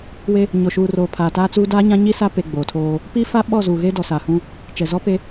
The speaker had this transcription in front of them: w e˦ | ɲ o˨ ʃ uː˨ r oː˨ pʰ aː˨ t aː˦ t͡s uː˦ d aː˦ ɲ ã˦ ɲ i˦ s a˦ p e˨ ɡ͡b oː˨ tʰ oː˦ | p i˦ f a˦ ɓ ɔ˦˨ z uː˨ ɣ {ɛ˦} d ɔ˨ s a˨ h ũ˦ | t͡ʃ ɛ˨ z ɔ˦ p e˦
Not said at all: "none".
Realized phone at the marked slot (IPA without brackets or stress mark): e˦